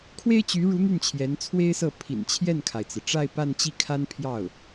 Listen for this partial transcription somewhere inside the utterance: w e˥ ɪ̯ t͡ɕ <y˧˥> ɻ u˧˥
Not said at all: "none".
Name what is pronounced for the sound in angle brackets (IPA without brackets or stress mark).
y˧˥